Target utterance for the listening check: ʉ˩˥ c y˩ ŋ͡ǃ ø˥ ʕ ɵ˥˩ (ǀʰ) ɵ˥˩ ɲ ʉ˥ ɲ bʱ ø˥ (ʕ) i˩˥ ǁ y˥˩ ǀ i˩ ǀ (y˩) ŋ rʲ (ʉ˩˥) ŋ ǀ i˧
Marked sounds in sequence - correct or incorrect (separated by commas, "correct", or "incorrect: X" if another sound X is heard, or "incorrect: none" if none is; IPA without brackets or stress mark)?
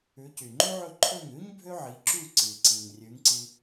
incorrect: ǃʰ, correct, incorrect: i˩, correct